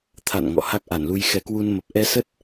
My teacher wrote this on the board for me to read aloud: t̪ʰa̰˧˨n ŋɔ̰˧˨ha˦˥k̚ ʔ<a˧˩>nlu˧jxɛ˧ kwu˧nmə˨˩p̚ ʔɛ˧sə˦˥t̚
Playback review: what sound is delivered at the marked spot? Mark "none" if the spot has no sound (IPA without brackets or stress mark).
a˧˩